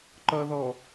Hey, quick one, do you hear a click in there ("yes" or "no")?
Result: yes